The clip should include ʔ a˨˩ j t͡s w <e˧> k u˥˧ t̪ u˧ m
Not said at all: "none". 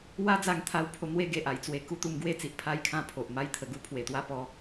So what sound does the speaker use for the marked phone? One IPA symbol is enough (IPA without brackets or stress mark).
e˧